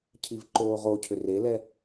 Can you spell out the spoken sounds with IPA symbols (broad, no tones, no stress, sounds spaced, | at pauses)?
cʰ i v ǃ oː ʁ o cʰ ʏ r e l ɛ